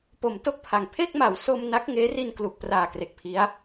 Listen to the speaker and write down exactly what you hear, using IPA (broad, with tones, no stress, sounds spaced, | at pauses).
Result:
p o˩˦ m t o˥˩ k̚ pʰ a˨˩ ŋ pʰ e˥˩ k̚ m a˩˦ w s o˧ m n a˦˥ k̚ ŋ eː˦˥ r i˧ n k l u˨˩ k̚ p r aː˨˩ k r e˨˩ k̚ pʰ i˦˥ a̯